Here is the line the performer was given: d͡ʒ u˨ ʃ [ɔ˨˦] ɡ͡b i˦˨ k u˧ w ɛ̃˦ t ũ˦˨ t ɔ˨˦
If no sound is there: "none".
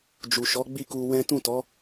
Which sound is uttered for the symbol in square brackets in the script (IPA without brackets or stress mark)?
ɔ˨˦